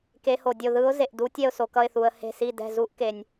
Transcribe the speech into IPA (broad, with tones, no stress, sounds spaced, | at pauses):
k e˨˦ h o˩ dʲ o˧˩ ð ɯ˨˦ ʊ̯ z e˩ ʔ d u˨˦ tʲ ɛ˧˩ ʊ̯ s o˩ k ʌ˧˩ ɪ̯ θ u˩ ə̯ h e̤˧˩ s i˧˩ d ɛ̤˧˩ z u˨˦ ʔ k e˩ nʲ